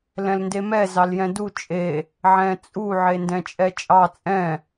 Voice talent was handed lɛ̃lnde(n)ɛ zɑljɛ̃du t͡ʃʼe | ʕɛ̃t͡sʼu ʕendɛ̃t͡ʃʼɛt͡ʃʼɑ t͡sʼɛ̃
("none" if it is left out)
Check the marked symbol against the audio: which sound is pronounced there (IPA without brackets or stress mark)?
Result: m